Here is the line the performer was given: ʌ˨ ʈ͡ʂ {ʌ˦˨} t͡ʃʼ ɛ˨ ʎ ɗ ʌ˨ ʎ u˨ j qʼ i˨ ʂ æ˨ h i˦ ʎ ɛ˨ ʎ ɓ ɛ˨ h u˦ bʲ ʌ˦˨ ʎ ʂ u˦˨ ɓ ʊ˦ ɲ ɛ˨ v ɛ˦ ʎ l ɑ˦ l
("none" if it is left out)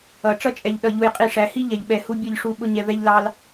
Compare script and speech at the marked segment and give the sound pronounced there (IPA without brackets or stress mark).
ʌ˦